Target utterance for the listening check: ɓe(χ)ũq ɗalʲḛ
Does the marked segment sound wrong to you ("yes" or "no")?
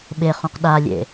no